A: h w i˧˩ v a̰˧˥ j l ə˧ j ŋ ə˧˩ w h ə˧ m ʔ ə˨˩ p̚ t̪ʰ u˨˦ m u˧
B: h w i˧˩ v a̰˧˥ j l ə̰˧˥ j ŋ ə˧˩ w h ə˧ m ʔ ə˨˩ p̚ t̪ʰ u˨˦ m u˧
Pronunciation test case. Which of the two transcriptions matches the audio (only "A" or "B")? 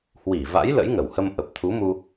B